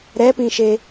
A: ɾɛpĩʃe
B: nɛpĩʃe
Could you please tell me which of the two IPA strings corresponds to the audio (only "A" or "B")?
A